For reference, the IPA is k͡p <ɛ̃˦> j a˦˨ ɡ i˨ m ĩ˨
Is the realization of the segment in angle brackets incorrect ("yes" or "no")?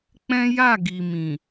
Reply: no